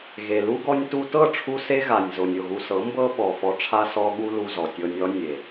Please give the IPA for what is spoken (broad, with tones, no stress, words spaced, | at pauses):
ɣe˨lu˦ ɡɔ˧nʲtu˧tɤ˦˨ʈ͡ʂʰu˧ se˦ɣa˨nʲzo˨nʲ o˦˨ɣu˧sɤ˨˦mbɤ˦ ɓɔ˨ fɔ˧ʈ͡ʂʰa˦ sɔ˧ɠu˧lu˨ zɔ˨tʲɤ˧nʲɔ˦ nʲe˨